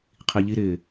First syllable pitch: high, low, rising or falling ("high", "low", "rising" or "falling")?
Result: low